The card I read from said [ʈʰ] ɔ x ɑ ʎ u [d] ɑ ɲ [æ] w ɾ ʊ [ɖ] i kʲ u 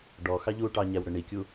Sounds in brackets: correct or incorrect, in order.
incorrect, incorrect, correct, incorrect

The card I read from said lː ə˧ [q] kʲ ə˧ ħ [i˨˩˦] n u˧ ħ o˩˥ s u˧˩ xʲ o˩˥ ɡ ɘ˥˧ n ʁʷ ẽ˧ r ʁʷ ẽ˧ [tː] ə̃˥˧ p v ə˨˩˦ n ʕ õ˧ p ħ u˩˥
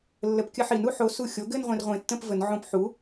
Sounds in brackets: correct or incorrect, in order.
incorrect, correct, correct

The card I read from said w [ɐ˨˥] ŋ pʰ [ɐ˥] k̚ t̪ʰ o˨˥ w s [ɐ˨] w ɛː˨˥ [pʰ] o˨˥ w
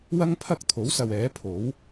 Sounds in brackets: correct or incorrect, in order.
incorrect, correct, correct, correct

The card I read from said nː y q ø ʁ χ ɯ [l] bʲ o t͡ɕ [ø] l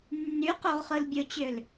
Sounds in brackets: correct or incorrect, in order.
correct, correct

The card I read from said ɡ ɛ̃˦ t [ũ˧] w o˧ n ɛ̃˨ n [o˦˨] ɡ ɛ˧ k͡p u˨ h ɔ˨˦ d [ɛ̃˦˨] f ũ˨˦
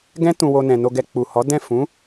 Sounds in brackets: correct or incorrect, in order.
correct, incorrect, correct

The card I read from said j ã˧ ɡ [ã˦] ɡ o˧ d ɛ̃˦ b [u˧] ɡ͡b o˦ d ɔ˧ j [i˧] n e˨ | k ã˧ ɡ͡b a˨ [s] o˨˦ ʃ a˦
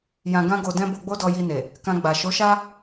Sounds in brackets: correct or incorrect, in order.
correct, incorrect, correct, incorrect

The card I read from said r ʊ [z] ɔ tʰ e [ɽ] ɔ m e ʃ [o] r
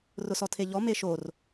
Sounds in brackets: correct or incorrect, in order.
incorrect, incorrect, correct

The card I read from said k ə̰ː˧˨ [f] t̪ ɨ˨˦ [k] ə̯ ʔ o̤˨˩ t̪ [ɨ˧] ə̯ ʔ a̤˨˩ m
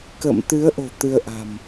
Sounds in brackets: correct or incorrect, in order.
incorrect, incorrect, correct

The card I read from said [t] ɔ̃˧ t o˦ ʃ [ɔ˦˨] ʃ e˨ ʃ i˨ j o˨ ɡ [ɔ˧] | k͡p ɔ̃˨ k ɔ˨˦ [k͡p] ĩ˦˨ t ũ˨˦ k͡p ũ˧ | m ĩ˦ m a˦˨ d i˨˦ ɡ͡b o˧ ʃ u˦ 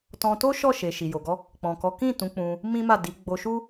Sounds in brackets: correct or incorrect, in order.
correct, correct, correct, incorrect

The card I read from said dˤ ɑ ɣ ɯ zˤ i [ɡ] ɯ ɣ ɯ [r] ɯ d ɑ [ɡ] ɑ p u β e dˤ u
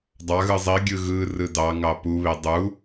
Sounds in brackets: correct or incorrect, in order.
incorrect, correct, incorrect

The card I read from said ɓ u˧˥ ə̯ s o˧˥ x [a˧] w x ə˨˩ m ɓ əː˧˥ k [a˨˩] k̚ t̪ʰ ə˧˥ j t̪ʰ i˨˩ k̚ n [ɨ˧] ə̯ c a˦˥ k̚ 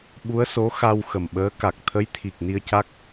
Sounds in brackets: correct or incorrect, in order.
correct, correct, incorrect

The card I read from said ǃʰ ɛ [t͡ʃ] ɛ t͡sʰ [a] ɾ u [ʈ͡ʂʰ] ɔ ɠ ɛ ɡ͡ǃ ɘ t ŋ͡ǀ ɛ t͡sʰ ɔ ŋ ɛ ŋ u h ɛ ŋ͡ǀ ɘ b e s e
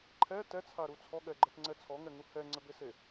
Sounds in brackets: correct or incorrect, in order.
incorrect, correct, incorrect

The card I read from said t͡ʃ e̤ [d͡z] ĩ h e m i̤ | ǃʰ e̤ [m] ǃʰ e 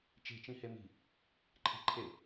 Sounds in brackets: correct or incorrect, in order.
incorrect, incorrect

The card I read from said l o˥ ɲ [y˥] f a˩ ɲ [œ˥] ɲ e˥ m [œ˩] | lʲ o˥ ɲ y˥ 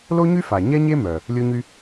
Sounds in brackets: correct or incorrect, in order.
correct, incorrect, correct

